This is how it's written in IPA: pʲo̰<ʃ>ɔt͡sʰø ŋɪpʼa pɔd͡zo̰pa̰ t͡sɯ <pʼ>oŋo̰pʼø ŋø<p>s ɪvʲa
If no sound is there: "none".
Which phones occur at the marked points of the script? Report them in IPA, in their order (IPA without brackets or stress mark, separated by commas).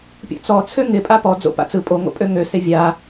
t͡s, pʼ, none